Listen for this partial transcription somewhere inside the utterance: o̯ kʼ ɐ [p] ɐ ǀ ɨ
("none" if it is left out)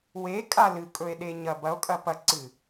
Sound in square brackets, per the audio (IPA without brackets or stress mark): p